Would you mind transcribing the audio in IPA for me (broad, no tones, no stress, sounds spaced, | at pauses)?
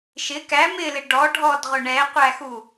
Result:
ʃ ɪ k æ m ɪ l ɪ ɖ ɔ ɖʱ ɔ d ʁ ʊ ɳ ɛ qʷ æ x u